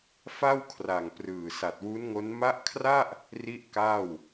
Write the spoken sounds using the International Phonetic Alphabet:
fa˥˩wkʰra˨˩ŋ prɯː˨˩sa˨˩t̚wu˦˥nŋo˦˥n ma˦˥ʔkʰra˥˩ʔ | ri˥˩ʔka˥˩w

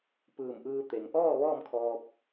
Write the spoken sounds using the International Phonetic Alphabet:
pɯː˧˩mʔɯː˧ t̪e˩ŋ ʔɔː˥˨ ʋɔː˥˨mkʰɔː˧p̚

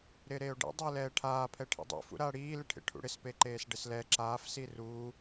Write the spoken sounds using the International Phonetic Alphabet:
ɾɪːɾeːo̯ɖḛ dˤɪːlɛːʈʰaː pʰɛʈʰḛdˤṵ fṵɾaːɽiː lɪʈʰḛʈʰṵɽɪs peǃeːsɖɪslɛ ǁaːf siru

